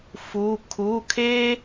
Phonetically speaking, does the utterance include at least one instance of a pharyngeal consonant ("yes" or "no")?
no